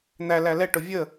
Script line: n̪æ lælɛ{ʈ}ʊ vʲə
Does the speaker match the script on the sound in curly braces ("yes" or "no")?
yes